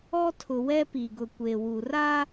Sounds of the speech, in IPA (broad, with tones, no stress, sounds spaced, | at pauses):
ɔ˦ tʰ ʊ˨ w ɛ˦ p i˨ ɡ ʊ˨ kʷ e˨ w u˨ r a˦